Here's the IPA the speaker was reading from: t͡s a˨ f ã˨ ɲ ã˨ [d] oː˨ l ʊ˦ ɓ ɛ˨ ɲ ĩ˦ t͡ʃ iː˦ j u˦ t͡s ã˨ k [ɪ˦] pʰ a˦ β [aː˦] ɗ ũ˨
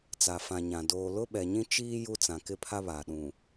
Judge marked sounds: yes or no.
yes, yes, no

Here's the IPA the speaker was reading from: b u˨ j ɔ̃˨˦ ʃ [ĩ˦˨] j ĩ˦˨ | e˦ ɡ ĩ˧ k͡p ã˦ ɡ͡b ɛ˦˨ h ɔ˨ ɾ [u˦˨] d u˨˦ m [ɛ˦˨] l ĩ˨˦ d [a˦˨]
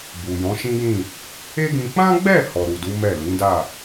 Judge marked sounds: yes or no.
no, no, yes, yes

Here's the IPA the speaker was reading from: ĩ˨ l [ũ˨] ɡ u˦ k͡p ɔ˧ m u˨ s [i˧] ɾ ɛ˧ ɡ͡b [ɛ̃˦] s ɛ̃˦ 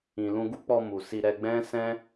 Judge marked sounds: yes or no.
no, yes, yes

